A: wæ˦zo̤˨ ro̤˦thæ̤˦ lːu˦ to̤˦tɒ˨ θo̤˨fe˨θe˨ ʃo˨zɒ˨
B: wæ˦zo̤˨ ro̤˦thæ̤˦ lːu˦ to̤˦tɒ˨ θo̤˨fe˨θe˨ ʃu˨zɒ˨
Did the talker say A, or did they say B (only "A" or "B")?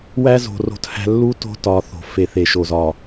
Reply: A